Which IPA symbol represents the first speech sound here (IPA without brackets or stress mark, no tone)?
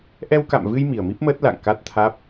ʔ